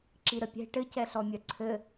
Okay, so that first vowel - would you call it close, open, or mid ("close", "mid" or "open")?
close